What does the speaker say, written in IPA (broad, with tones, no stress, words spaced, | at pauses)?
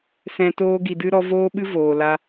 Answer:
sɛ̃˨ toː˧ɡi˨ dɨ˧ɾɔ˧voː˦ɓɨ˦ voː˨la˦